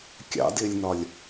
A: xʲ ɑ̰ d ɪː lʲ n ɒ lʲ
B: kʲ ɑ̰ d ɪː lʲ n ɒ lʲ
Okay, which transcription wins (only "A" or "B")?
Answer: B